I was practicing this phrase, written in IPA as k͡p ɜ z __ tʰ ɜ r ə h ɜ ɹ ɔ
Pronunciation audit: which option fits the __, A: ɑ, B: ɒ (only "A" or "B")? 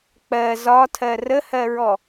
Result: B